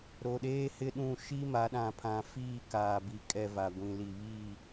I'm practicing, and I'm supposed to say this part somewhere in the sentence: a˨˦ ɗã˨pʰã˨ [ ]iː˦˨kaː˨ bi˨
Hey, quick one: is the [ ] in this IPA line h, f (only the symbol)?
f